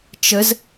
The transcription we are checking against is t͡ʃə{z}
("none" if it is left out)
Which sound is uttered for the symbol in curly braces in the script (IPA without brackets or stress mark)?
z